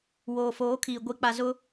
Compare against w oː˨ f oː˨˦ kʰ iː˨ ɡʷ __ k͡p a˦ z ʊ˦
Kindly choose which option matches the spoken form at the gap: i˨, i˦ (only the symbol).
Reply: i˦